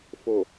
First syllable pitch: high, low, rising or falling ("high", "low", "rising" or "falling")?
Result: low